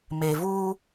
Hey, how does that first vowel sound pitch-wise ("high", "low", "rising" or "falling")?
low